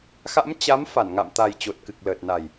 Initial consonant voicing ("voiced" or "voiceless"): voiceless